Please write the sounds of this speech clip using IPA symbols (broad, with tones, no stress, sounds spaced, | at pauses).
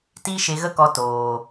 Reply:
t iː˦ ʃ e˧ ɣ ə˦ k ɔ˧ t oː˨